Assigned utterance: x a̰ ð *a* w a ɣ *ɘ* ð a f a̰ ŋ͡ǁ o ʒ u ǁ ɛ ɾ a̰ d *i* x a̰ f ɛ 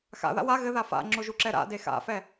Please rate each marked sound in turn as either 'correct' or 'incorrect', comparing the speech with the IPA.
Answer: incorrect: a̰, correct, incorrect: e

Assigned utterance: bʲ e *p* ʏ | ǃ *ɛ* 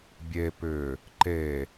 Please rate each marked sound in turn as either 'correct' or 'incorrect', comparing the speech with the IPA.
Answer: correct, incorrect: e

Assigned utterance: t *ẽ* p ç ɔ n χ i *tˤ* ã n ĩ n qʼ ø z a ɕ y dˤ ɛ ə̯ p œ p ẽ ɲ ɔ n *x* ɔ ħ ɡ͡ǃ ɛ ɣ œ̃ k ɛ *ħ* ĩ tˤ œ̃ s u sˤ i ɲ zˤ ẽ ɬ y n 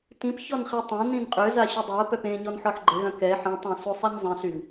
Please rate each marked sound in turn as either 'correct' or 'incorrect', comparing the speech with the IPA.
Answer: incorrect: ĩ, correct, incorrect: ħ, correct

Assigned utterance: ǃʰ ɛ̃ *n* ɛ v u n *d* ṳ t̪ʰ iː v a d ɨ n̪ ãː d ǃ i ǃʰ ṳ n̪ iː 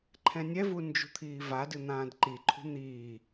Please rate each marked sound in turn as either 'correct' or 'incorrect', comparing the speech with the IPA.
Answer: incorrect: nʲ, incorrect: d͡ʒ

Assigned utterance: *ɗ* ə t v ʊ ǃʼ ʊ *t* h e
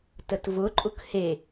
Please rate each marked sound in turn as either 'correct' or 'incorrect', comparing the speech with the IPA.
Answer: incorrect: t, incorrect: k

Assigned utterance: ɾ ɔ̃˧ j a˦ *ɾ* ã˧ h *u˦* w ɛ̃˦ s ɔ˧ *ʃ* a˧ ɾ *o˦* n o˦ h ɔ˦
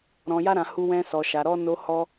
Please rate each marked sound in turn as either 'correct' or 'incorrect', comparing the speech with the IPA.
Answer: correct, correct, correct, incorrect: ɔ˦

